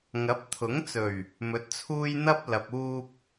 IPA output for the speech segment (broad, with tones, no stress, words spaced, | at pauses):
ŋɐ˨˥p̚t̪ʰʊ˨˥ŋt͡sɵ˨˩ɥ | mɵ˨˥t̚t͡sʰuː˧j n̪ɐ˥p̚ lɐ˨p̚uː˧p̚